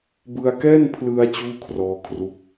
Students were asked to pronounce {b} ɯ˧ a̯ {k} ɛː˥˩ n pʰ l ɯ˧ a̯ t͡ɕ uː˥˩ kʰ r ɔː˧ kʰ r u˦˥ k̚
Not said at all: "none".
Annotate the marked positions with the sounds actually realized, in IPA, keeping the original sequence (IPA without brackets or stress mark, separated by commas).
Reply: b, k